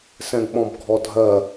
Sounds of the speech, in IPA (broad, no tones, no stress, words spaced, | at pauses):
sɛ̃ɡɓɔ̃bɡʱɔdʱɜ